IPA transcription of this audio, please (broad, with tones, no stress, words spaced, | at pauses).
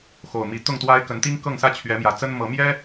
xo˨˩ʊ̯mi˨˦ t̪ʊ˥˨ŋt̪wa˦ɪ̯ kə˨˦nt̪i˦ŋ kɤ˥˨ŋsä˦t͡ɕʰɥɛ˨˦mjä˨˩ t͡sə˦nmɤ˨˦mjɛ˦